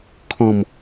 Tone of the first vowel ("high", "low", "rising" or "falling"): low